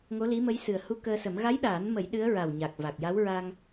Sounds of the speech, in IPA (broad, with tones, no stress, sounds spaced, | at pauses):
ŋ o˧˥ l i˧˥ m ə˧˥ j s ɨ˨˩ ə̯ h u˧ k əː˧ s ə˨˩˦ m ɣ a˧˥ j ɗ aː˨˩˦ n m ə˨˩˦ j ɗ ɨ˧˥ ə̯ ɹ a˨˩ w ɲ a˨˩ k̚ v a˨˩ k̚ j a˧˥ w ɹ a˧ ŋ